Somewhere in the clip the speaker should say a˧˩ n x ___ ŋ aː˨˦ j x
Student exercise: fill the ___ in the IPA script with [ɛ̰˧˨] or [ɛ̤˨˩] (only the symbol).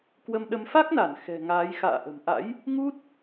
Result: ɛ̤˨˩